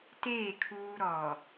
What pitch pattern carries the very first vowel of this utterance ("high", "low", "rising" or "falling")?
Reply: falling